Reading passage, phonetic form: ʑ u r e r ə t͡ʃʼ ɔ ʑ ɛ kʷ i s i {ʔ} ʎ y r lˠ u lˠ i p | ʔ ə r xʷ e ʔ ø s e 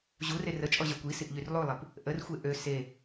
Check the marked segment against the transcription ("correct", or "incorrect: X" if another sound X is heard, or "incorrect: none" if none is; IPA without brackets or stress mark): correct